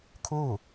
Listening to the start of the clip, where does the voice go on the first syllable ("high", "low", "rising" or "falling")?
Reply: falling